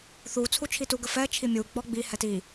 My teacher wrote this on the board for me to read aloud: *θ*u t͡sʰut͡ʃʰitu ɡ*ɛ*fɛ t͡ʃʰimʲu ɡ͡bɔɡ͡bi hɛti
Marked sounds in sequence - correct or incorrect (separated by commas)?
correct, incorrect